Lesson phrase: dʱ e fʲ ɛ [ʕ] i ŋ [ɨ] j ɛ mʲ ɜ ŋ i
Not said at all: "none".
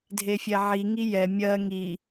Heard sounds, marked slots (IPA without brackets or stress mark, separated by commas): ʕ, i